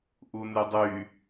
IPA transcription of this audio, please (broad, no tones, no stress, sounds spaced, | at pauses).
ʔ u n y dˤ y